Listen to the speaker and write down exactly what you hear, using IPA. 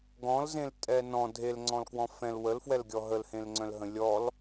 ɡ ɔ̃ l z ẽ l tʼ ɛ n ɔ̃ dʱ e l ŋ͡ǀ ɔ̃ l k w ɔ̃ f ɛ̃ l w ə l f w ɛ l ɡʲ ɔ ɦ ə l h ẽ l ŋ͡ǀ œ̃ l ɦ ə̃ lʲ ɔ l

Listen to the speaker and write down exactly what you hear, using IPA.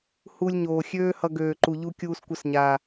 h u˧ lʲ ɲ oː˨ xʲ øː˦ h ʌ˧ ɡ øː˨ ǃ u˨ ʎ u˧ kʲ uː˧ s kʷ ə˧ s ɲ aː˨

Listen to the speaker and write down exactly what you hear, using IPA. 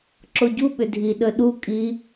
ǁ o ɟ u ɓ ʏ dʱ i ɗ ə ɗ u kʼ i

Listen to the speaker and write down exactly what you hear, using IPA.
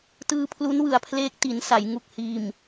t ɯː˧ pʰ l u˦˥ n w ɯ˨˩ a̯ pʰ l eː˦˥ k̚ t i˩˦ n s a˩˦ j ŋ u˨˩ k̚ h iː˨˩ m

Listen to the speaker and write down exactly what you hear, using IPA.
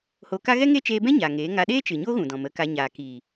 h o˧ k a˦ ɣ ɛ˦ ŋ e˦ t͡ʃ eː˧ b ɛ̃˦ ɲ a˨ ŋ eː˨˦ ŋ a˧ ɗ eː˦ t͡ʃ ɨ˨ ɲ o˦ ɣ ũ˨ d ɔ̃˨ m ə˨˦ k a˧ ɲ aː˨ k iː˨

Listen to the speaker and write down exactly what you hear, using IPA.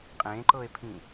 qʼ ẽ ǃ ɤ e̯ pʰ ĩ

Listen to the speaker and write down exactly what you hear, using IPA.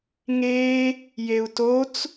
ŋ e | j e u̯ t o t͡s

